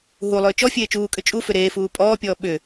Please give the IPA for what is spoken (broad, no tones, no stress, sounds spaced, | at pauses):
ɦ u lˠ ʏː t͡ʃ ɔ fʲ eː t͡ʃ uː kʼ ʏ t͡ʃʼ u f ʏ ɾ eː f uː pʼ ɔː pʲ ɔː ɓ ʏ